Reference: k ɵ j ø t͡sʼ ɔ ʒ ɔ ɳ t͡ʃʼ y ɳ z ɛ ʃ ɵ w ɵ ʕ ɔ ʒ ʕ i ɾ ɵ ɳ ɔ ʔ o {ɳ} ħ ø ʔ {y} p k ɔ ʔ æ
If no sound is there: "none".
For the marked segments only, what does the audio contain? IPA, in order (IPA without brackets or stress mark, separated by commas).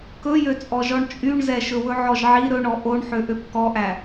ɳ, ø